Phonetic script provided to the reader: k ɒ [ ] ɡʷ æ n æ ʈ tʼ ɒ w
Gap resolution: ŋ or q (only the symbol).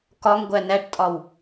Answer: ŋ